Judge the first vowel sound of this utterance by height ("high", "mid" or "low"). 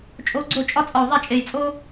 mid